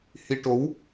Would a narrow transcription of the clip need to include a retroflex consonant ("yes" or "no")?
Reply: yes